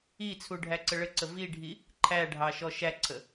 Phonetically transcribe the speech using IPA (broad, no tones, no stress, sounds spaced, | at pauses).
i t͡sʰ u ɖʱ æ ǀ ə ɭ ə ǀ ə v i ɖʱ i | ǃʰ æ ɖʱ ɑ ʃ ɔ ʃ æ ǀʰ ə